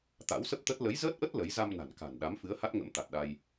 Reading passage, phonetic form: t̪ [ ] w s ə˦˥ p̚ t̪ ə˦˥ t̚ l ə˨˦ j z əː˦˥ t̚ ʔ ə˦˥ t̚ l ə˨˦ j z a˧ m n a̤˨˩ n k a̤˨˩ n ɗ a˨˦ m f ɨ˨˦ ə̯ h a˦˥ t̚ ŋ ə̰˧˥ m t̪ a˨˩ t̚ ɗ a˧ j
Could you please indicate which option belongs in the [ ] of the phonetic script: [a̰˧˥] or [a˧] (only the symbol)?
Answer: a̰˧˥